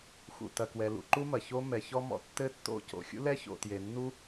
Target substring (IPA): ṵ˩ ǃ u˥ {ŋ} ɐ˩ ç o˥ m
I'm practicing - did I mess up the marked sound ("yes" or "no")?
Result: yes